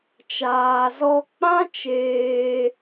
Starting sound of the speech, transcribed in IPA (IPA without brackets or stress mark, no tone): t͡ʃ